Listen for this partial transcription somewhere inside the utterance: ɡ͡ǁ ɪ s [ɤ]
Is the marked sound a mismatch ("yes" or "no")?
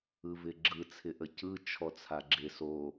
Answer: yes